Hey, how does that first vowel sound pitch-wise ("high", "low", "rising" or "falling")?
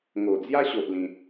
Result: low